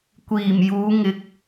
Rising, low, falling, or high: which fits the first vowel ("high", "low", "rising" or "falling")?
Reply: low